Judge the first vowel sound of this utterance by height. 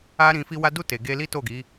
low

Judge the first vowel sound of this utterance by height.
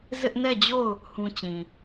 high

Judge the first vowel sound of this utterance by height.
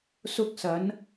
high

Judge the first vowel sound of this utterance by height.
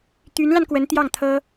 high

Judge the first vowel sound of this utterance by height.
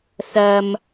low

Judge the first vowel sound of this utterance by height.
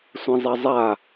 mid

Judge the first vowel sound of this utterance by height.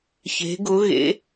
mid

